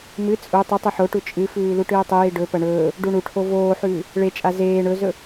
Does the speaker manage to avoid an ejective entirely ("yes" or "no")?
no